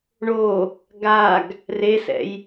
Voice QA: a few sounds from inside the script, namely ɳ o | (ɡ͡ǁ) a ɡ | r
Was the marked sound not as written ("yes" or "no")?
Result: yes